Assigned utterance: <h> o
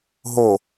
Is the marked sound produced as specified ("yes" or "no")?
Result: no